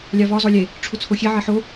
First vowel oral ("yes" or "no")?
yes